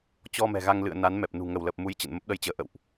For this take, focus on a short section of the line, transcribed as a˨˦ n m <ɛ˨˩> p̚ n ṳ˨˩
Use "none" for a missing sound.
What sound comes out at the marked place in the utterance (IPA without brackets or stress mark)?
ɛ˨˩